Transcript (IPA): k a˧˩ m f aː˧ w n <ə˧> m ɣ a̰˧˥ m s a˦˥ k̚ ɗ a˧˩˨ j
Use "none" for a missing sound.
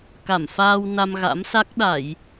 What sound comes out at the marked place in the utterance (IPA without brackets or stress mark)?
a˧